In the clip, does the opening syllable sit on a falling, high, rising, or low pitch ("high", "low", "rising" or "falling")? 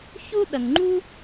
high